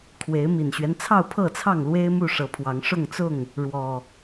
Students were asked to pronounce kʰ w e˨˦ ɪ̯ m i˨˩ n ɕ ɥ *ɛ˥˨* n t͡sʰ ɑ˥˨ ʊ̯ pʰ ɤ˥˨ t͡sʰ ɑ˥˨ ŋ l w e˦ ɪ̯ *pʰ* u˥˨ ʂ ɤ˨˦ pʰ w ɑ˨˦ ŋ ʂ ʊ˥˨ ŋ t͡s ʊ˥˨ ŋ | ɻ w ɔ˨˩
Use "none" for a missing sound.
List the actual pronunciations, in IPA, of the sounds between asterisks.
ɛ˦, m

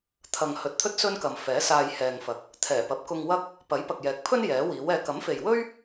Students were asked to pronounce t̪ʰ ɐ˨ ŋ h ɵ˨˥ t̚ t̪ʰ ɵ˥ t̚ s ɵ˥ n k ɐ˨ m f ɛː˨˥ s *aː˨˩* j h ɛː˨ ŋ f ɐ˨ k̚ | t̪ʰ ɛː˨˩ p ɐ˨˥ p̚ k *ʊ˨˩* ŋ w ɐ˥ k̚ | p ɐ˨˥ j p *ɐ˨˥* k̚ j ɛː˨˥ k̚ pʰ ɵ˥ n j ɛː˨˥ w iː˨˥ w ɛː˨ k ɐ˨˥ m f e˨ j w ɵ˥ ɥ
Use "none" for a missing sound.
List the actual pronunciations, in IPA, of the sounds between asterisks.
aː˧, ʊ˧, ɐ˨

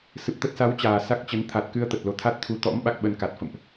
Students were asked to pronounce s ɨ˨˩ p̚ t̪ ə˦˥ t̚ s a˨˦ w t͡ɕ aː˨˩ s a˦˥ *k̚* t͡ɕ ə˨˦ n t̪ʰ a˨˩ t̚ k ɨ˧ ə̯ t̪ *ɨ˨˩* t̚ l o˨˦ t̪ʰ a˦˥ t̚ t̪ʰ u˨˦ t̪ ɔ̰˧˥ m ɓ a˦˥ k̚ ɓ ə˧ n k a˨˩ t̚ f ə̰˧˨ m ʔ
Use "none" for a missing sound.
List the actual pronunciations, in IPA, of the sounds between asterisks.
k̚, ə˨˩

